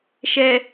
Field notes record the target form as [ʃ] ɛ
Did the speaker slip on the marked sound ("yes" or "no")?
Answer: no